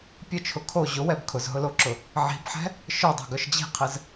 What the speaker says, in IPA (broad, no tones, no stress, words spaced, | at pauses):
pʲʊt͡ʃʰʊ kʰo ʑʊwɛb kʰʊzɦʊloǁʊ | ʕi̤bħɛ̤ | ʃœdˤo̤ɡœʃ d͡ʑi̤qʰɘz